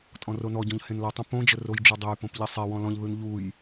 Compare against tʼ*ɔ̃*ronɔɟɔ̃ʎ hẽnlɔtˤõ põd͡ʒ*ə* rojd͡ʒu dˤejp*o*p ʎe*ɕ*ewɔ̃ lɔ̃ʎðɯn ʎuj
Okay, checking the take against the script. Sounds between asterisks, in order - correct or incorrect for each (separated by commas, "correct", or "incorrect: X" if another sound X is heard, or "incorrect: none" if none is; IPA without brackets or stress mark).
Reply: correct, correct, incorrect: õ, incorrect: sˤ